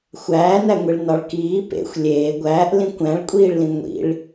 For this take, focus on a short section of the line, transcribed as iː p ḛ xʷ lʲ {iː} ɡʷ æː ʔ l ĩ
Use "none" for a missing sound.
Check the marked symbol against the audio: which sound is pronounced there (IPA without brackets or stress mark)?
eː